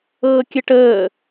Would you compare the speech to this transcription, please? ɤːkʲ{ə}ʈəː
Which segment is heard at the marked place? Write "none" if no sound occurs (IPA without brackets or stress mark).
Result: ə